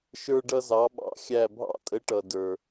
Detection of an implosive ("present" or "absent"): present